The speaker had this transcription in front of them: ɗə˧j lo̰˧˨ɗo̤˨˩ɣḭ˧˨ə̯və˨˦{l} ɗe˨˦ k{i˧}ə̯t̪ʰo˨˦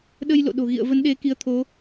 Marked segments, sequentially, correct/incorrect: incorrect: n, incorrect: i˨˦

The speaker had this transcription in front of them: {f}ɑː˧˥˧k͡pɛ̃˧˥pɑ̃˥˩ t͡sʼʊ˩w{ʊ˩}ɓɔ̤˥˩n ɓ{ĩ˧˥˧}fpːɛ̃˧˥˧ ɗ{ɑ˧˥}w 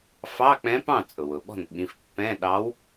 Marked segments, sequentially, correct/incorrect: correct, correct, incorrect: ĩ˩˧˩, correct

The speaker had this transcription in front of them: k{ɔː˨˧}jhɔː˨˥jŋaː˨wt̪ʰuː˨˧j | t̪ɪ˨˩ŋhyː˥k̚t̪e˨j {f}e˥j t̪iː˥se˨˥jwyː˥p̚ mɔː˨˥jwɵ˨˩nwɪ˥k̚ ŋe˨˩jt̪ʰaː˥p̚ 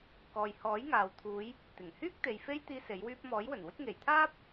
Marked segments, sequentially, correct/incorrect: incorrect: ɔː˨, correct

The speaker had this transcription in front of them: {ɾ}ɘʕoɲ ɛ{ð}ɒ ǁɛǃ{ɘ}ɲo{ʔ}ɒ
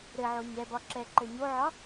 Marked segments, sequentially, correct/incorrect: correct, incorrect: b, correct, incorrect: ʕ

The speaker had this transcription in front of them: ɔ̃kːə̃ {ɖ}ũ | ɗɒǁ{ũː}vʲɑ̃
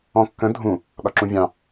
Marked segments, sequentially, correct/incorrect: incorrect: dʱ, incorrect: ũ

